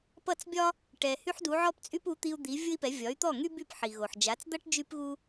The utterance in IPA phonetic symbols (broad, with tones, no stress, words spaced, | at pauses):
pʌ˥˩t͡sbʲɒ˥ | ʈɛ˩ hy˥ħdu˩˥ ʕɔ˥pt͡sʼy˥p u˩˥t̪i˧u̯ d̪i˩˥ vʲʊ˥i̯pɛ˩˥ vʲɒ˩˥y̯t̪ɔ˥˩ŋy˥by˥˩p ħi˩ɣo˩ħd͡ʒa˩˥t͡sd̪ʌ˥ʈ d͡ʒy˥pɣu˥